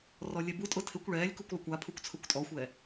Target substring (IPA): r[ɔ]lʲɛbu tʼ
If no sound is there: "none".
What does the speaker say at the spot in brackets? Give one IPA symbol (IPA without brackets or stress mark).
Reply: ɔ